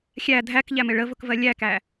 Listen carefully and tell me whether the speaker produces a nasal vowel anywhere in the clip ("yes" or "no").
no